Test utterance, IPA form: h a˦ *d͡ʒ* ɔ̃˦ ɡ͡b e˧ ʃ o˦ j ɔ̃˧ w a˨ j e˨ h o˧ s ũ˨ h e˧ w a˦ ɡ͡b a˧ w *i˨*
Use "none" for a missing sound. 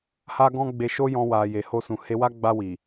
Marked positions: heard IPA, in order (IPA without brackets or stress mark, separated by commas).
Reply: ɡ, i˨